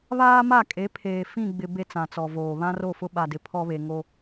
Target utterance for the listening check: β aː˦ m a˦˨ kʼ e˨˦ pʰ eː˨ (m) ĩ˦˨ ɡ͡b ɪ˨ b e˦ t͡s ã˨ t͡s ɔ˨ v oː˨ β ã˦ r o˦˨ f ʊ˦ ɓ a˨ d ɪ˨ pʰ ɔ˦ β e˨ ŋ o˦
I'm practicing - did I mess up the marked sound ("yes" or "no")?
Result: yes